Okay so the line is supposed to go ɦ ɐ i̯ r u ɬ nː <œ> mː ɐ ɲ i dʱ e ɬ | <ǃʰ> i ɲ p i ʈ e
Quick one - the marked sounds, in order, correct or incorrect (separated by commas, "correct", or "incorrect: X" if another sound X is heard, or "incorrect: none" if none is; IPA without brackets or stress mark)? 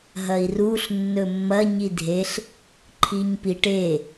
incorrect: ɵ, correct